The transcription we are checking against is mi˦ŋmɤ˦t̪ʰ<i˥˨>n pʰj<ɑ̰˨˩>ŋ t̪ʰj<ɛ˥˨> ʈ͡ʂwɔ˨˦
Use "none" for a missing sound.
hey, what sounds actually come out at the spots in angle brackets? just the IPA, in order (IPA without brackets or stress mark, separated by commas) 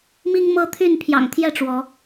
y˥˨, ɑ̰˨˩, ɛ˥˨